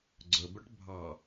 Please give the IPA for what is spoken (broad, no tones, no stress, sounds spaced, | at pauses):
ɡ͡ǀ ɵ b œ ʈ bʱ ɑ